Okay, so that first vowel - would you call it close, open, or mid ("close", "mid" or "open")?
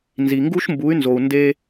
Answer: close